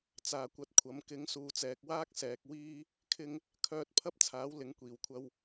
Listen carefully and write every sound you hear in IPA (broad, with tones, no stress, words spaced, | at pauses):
t͡saː˨˩kʷɐ˧t̚kʷʰɐ˨˥m kɪ˨˥ŋsuː˨t͡sɛː˨k̚waː˥k̚ sɛː˧k̚ wiː˥ | kʰɪ˧ŋ | kʰœː˧t̚pʰɐ˥p̚t͡sʰaː˨˥w lɪ˨˧ŋkʷiː˨˩w kʷʰɐ˧w